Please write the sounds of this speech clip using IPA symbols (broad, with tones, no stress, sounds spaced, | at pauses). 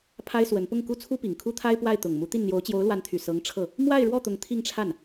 pʰ a˥ ɪ̯ s w ə˧˥ n p ʊ˥˩ ŋ k u˥ t͡sʰ u˥ p i˨˩ ŋ kʰ u˥ t̪ʰ a˥ ɪ̯ p w a˥˩ ɪ̯ t̪ ʊ˨˩ ŋ m u˧˥ t̪ i˥˩ n n̪ j o˧˥ ʊ̯ t͡ɕ j o˧˥ ʊ̯ l w a˧˥ n t̪ʰ y˨˩ s ɤ˧˥ ŋ ʈ͡ʂʰ ɤ˥˩ | m w a˥˧ ɪ̯ ɻ w ɔ˥˩ t̪ ʊ˧˥ ŋ t̪ʰ i˥˧ ŋ ʈ͡ʂʰ a˥˩ n